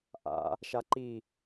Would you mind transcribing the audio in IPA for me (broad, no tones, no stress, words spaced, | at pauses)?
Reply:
ʔa̰ | ʃaǃi